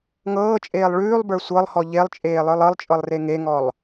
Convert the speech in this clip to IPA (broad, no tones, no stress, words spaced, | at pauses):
ŋɤːt͡ʃʼeːlˠ ɭʉːlˠbə˞ sʷɤlˠhɔ ʎelˠt͡ʃʼeːlˠə˞lˠ ɤlˠt͡ʃʼɤlˠre ŋeŋɔlˠ